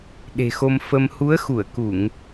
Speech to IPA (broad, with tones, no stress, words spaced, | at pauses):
ɗe̤˨˩xo˧m fə˧m hu˨˦ə̯xu˧˩ə̯ ku˧˩˨ŋ